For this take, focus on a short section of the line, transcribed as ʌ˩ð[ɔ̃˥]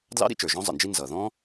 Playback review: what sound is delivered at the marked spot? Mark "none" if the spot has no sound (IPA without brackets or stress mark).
ɔ̃˥